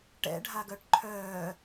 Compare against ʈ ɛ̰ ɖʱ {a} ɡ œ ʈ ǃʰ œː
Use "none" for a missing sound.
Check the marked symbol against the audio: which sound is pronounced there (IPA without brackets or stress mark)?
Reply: a